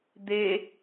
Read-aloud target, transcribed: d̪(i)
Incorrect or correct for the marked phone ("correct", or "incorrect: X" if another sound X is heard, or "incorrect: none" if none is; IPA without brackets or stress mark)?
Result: incorrect: e